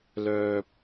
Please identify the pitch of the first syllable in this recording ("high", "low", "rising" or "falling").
high